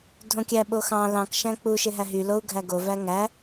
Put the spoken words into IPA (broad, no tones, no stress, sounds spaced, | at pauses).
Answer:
dʱ õ kʲ æ ɓ o x ɑ̃ l ɑ̃ k ʃ æ̃ k͡p u ʃ e ɦ æ ɦ y l o u̯ ɡʱ æ ɡ o v æ ŋ æ